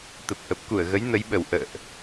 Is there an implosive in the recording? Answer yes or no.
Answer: yes